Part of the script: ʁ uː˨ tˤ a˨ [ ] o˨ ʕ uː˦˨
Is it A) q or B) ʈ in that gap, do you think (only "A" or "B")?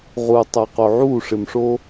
A